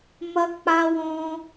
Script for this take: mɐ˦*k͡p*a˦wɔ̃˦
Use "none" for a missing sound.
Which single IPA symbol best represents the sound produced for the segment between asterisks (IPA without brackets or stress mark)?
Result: k͡p